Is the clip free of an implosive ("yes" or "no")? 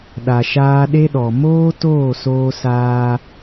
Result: no